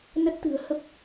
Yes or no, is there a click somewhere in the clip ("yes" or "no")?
no